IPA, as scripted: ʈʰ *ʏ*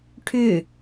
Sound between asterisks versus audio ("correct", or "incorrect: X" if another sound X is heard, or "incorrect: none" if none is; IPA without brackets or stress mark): correct